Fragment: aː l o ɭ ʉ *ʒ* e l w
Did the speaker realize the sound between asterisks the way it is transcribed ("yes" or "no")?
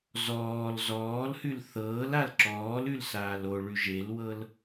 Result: yes